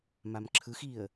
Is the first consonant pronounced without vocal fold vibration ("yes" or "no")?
no